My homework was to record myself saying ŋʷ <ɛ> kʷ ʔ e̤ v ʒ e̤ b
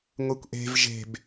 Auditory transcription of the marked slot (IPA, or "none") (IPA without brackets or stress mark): e